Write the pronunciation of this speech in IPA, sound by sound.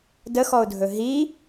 dəxɔʊ̯dʱɵ ɦi

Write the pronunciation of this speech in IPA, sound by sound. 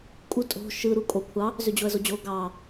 kʼu tʼo̤ ʃɯ ɾukʼo kʷʰɑ | zød͡ʑoə̯zod͡ʑo ɡɑ

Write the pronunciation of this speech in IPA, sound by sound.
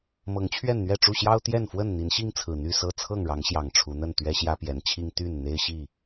mɤ˨˦ŋt͡ɕʰɥɛ˥˨nn̪ɥɛ˥˨ʈ͡ʂu˥˨ ɕjɑ˦ʊ̯t̪jɛ˥˨nfwə˥˨n n̪i˨˦nɕi˦ŋt͡sʰɹ̩˨˩ n̪y˥˨sɤ˥˨ t͡sʰɤ˥˨ŋɻɑ˨˦ŋɕjɑ˨˩ŋ ʈ͡ʂʰu˨˦n̪ə˥˨n t̪ɥɛ˦ɕjä˦pjɛ˨˦nt͡ɕʰi˦ŋ t̪y˥˨n n̪e˦ɪ̯ɕi˥˨

